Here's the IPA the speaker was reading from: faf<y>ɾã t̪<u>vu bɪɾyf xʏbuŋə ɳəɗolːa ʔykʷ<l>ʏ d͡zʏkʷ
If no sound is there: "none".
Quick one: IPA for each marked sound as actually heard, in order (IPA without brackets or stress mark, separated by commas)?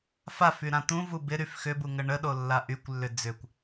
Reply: y, ũ, lː